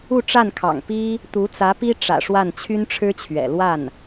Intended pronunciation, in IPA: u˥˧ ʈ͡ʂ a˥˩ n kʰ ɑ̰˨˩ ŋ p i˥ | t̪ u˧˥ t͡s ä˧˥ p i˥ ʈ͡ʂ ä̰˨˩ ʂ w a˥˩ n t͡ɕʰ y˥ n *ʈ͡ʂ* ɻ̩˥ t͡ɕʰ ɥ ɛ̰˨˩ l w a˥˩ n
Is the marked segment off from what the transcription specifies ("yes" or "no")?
yes